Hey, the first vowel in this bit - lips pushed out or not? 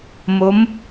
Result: yes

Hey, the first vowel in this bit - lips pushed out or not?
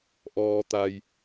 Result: yes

